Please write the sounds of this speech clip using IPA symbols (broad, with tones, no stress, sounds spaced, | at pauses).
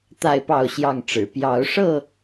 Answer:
t̪ a˥˨ ɪ̯ p ɑ˥˨ ʊ̯ ɕ j ɑ˥˨ ŋ ʈ͡ʂ ɻ̩˨˩ p j ɑ˨˦ ʊ̯ ʂ ɤ˥˨